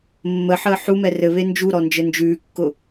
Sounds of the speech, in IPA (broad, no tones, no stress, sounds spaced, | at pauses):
mː ə ħ əː ħ u m ɛ r ɘ β e n d͡ʒ u ɾ ɔ n d͡ʒ ɘ n d͡ʒ ʉː kː ʊ